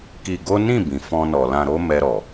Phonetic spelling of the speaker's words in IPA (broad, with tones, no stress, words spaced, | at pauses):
ki˧ɡo˦ nĩ˦˨ bĩ˨fɔ̃˧nɔ˨lã˧ ɾo˦mɛ˧ɾɔ˨